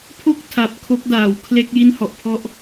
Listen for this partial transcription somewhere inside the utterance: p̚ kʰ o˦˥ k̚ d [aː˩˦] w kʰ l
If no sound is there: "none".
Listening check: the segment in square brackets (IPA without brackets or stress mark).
aː˩˦